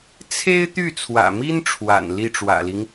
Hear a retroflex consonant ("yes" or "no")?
yes